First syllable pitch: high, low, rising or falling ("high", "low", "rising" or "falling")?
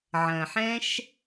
low